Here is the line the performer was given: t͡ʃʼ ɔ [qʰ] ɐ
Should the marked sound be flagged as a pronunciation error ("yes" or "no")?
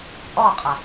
yes